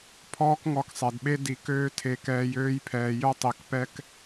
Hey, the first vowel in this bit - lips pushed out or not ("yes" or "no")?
yes